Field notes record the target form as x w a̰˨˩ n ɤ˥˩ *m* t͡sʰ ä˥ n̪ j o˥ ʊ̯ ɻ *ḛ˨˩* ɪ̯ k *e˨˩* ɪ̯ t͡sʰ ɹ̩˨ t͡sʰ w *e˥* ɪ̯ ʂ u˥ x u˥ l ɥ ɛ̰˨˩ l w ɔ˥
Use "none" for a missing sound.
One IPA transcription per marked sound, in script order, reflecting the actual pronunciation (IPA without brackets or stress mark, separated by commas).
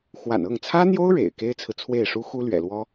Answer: ŋ, ḛ˨˩, e˥, e˥˩